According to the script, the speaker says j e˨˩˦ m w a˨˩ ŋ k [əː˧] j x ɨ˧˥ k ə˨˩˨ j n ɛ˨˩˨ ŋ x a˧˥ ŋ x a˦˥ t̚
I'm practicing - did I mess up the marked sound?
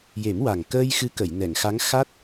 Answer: no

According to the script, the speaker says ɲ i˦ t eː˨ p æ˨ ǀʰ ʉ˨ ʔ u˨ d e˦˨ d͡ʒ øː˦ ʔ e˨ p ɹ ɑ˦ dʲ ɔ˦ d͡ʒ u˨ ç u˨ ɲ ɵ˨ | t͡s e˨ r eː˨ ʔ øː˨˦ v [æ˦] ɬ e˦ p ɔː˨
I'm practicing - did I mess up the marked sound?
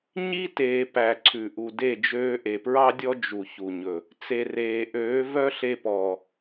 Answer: yes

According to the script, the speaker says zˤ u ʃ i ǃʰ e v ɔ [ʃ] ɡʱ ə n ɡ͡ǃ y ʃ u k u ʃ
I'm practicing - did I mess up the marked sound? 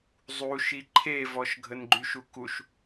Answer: no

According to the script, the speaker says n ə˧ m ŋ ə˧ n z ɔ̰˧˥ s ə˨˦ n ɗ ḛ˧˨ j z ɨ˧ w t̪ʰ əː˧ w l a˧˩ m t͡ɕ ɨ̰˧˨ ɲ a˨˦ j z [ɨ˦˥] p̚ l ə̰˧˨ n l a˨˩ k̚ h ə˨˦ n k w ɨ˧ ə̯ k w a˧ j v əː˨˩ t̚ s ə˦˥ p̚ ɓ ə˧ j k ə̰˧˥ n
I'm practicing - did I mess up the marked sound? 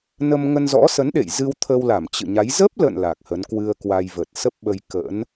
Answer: yes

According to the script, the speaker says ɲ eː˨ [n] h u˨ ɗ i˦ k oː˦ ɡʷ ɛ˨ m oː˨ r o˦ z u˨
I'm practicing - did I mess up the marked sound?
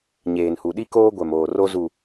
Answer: no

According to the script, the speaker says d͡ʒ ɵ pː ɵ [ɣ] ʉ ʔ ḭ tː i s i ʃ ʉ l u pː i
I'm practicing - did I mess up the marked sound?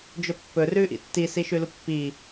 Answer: yes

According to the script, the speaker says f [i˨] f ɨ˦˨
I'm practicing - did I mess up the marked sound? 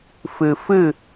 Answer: yes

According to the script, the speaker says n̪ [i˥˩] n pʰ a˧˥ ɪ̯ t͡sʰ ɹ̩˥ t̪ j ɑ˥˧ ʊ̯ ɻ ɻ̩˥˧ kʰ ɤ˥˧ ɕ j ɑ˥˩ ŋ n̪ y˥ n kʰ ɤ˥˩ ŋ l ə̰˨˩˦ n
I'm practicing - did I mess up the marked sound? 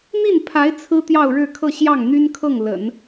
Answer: no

